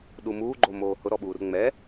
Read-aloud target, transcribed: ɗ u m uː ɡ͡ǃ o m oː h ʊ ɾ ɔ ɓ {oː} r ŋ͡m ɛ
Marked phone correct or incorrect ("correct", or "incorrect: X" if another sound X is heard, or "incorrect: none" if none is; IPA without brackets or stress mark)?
incorrect: uː